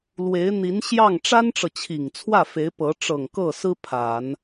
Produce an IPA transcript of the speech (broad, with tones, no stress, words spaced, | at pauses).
lwe˧˥ɪ̯n̪i˧˥n ɕjɑ˥˩ŋ ʈ͡ʂa˥nʈ͡ʂɤ˨t͡ɕʰi˨˩ŋ t͡sʰwä˥˩fe˧˥ɪ̯pɤ˧˥ ʈ͡ʂɤ˨˩ŋ kɤ˥˩sɹ̩˥ pʰa˨˩˦n